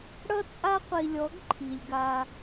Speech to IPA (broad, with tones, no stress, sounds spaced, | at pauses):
ɽ ʌ˦ t͡sʼ a˦ qʷ i˨ lʲ ɔ˨˦ ɡ ǃʰ i˨ lʲ ɡ a˦